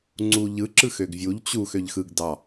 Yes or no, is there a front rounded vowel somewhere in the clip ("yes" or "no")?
yes